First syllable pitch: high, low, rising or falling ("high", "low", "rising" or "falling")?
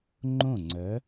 falling